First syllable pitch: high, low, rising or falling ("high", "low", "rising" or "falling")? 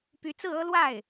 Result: rising